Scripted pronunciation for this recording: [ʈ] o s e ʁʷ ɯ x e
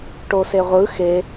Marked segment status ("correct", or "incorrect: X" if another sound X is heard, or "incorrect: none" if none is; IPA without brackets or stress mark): correct